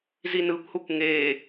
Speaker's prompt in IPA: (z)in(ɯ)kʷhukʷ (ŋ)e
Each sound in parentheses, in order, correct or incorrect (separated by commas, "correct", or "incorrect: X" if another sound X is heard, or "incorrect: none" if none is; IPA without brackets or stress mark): correct, correct, correct